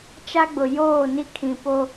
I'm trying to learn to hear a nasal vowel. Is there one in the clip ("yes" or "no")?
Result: yes